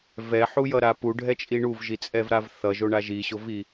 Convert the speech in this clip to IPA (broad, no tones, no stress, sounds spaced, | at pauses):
v ɛ ħ u j ʌ ɾ a p u ɖʱ ɛ t͡ʃʼ i ɳ u v ʒ i t͡sʼ ɛ v ɾ a v θ ʌ ʒ o ɳ a ʒ i ɕ o v i